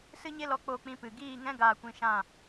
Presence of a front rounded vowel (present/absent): absent